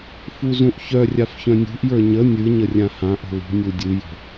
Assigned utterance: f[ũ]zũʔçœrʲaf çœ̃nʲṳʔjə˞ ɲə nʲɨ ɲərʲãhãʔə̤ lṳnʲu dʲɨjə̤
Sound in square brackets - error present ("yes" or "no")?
yes